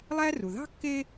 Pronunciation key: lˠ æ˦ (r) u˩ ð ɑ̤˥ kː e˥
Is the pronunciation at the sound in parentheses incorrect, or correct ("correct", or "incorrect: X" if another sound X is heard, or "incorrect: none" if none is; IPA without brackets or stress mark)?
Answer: correct